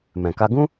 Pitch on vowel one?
low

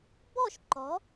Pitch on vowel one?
falling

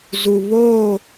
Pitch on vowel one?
low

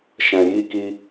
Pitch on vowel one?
low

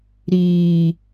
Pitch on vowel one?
low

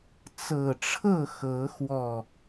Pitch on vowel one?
low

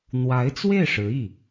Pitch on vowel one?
rising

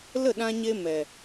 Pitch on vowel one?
falling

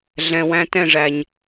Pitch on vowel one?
low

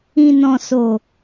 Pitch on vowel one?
low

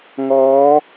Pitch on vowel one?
rising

